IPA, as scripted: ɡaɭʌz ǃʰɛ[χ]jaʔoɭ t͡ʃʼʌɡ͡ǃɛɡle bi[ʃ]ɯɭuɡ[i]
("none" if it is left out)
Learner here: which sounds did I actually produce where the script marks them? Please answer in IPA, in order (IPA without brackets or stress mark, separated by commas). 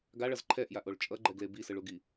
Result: ʔ, s, i